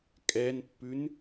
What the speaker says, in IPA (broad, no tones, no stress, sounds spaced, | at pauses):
kʼ ɛ n pː ʉ n